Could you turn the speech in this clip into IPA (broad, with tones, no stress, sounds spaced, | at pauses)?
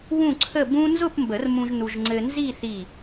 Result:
w ũ˥˧ ǀʰ ə˥˧ b ũ˥ n z ʊ˥˧ p m b ə˨˩˦ r m ũ˧ ʒ n u˧ ʒ ŋ͡ǀ ɘ˧ n z i˥˧ θ i˧˩